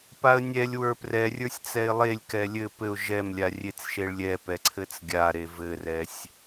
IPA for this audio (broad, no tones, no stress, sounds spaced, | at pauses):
p a ə̯ nʲ ɛ lʲ w ə˞ p r ɛ rʲ ə˞ sʲ t͡s ɛ ɪ̯ lˠ e lʲ k ɛ lʲ ɘ p ɘ ʊ̯ ʒ ɛ m lʲ a rʲ e t͡s ʃ e ɭ lʲ ɛ p ɛ ǀʰ ɘ t͡s ɡʲ a ɾ e v ɘ r ɛ sʲ